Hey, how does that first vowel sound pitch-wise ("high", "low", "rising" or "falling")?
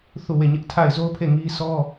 falling